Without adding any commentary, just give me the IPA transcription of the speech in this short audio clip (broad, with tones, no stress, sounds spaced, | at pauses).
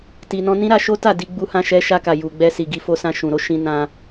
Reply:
t i˨ n ɔ̃˧ n ĩ˦ ɾ a˧ ʃ o˦ t a˦˨ d i˧ ɡ͡b u˧ h ã˧ ʃ ɛ˧ ʃ a˧ k a˨ j u˨ ɡ͡b ɛ˧ s i˨ ɡ i˧ f o˧ s ã˧ ʃ ũ˨ ɾ o˧ ʃ ĩ˧ n ã˧